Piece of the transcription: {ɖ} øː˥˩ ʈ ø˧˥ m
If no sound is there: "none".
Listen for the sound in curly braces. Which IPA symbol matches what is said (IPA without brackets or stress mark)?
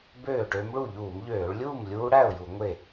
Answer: b